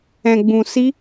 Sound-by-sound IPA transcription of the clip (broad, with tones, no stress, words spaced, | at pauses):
ɛ̃˨ɡ͡bũ˨si˧